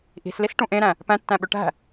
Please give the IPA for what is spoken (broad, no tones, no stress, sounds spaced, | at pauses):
ʔ i̤ s l i s ʈ ũ ʔ ẽ ɾ æ̃ | p æ̃ tː æ̃ ɓ ø ʈ æ̤